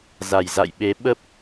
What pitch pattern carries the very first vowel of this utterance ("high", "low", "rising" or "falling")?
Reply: low